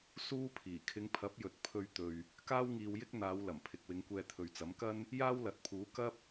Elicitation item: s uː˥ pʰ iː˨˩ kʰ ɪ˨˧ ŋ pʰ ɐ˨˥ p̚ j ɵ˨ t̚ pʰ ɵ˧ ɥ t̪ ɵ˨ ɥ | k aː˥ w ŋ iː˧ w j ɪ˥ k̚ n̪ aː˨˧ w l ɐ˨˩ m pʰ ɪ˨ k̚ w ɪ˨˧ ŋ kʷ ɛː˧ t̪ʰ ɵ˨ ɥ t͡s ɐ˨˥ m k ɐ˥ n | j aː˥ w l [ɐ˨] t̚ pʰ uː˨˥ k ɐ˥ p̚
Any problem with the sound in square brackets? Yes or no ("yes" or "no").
no